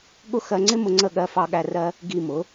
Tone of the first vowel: high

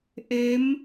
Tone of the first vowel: rising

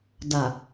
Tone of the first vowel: low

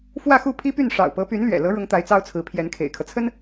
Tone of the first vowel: falling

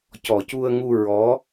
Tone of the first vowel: low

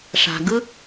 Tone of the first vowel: low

